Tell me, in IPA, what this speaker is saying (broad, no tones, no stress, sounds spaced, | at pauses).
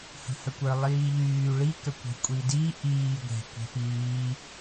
h ə̤ h ə kʷ ə˞ lˠ iː ʎ yː ɭ i k ə kʷ ə̤ kʷʼ i d i ʔ iː ɡʷ ɛ̤ kʷ ɛ̤ p iː